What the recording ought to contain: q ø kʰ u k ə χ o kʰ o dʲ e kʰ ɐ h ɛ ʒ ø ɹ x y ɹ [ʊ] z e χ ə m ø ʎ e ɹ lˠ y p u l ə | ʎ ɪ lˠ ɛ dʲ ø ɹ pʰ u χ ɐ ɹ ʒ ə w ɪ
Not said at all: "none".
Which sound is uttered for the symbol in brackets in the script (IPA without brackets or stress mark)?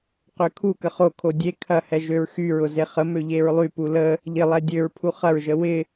ʊ